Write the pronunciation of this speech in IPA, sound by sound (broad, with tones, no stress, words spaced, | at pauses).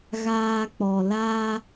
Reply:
ɣaː˧ k͡pɔ˨ la˧